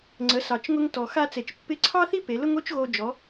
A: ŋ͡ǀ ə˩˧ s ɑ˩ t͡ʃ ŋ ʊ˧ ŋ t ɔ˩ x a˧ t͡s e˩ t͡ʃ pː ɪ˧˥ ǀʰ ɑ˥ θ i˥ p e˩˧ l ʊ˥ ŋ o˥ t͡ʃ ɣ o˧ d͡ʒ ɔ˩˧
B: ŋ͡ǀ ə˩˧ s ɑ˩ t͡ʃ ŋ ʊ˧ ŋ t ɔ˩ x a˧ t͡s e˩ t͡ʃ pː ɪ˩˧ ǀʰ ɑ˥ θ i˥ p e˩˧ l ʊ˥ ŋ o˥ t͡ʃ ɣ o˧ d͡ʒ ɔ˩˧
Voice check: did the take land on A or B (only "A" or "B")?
A